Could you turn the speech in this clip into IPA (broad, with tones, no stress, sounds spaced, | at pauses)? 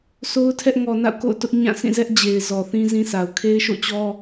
s o˦ ʊ̯ tʰ ɛ˦ ʔ ŋ ɔ˨ n a̰˦˨ ʊ̯ k o̰˦˨ ʊ̯ t ʊ˦ ʔ ɲ ã˦˨ s ĩ˦˨ z ɛ˦ ʔ d͡ʑ e˨ ɪ̯ z ɔ˨ θ ĩ˦ z ĩ˦ s a˨ ʊ̯ kʰ e˦ ɪ̯ ʃ o̰˦˨ t͡ɕ ɔ˦